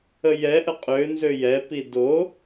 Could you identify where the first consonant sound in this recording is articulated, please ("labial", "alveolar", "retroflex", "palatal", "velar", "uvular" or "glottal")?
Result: palatal